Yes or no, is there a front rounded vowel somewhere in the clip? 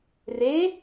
no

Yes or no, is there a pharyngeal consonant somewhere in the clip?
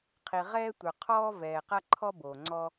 no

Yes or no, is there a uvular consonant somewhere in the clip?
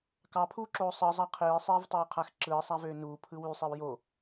yes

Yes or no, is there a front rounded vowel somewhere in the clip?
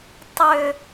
yes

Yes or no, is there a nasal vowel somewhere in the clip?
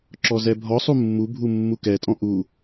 yes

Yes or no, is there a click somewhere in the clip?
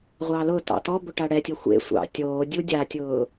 no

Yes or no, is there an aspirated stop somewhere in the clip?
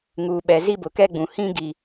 no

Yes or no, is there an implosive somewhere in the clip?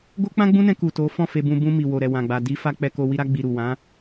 no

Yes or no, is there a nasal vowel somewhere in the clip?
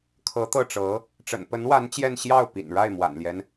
no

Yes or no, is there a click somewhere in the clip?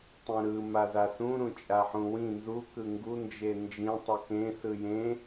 no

